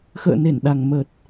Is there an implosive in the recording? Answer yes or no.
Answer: yes